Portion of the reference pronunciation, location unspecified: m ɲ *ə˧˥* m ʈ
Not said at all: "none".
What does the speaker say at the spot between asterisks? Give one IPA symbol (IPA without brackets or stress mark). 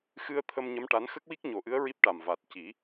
ə˧˥